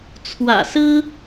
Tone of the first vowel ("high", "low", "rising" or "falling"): low